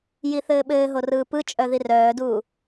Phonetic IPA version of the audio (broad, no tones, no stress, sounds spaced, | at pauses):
j i θ ɘː ɓ ɘː ɦ o r ɯː p ɯ t͡ʃʼ œ ð i r œː d uː